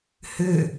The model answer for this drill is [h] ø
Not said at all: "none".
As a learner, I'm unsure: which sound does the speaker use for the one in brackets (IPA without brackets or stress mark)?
h